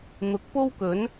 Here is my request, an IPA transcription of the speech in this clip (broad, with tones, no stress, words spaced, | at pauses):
n̪ʊ˨˥k̚po˥wkɵ˨˥n